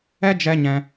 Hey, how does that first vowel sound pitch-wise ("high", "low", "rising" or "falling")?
high